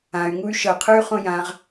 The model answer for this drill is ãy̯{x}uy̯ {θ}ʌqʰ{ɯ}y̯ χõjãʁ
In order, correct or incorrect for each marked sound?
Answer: incorrect, incorrect, correct

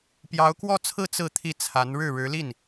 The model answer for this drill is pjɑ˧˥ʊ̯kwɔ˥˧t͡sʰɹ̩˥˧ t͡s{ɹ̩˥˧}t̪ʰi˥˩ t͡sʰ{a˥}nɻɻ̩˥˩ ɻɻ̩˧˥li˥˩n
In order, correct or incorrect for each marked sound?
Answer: correct, incorrect

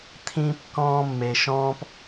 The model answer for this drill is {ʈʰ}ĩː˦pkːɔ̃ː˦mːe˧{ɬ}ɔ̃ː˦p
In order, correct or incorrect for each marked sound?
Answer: incorrect, incorrect

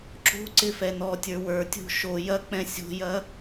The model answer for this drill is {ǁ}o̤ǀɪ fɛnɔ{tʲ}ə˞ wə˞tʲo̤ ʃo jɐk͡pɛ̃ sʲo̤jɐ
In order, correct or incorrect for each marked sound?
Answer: correct, correct

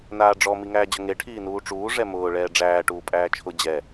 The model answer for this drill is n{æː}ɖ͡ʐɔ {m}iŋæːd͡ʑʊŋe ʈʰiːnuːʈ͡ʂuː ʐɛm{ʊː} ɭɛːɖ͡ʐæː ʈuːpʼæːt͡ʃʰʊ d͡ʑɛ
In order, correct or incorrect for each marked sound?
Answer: incorrect, correct, correct

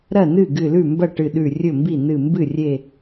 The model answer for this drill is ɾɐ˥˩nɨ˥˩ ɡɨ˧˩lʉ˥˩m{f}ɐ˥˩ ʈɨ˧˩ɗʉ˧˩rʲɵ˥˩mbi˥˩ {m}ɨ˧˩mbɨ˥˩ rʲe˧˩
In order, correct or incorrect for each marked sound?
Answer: incorrect, incorrect

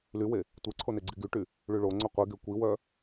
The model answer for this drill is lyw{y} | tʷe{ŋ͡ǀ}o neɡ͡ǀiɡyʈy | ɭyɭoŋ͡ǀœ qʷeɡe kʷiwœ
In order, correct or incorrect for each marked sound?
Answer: incorrect, incorrect

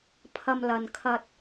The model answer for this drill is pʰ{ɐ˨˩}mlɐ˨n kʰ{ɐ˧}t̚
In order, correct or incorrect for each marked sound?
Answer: incorrect, correct

